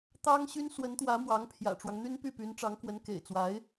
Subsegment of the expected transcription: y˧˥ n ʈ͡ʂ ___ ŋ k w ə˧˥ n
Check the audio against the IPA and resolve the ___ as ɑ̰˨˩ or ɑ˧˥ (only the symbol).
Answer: ɑ˧˥